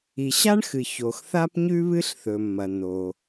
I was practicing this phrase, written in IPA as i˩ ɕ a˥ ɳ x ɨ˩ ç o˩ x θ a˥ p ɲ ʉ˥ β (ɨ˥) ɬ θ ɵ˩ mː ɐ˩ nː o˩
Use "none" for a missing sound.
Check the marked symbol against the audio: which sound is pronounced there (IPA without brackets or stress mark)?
ɨ˥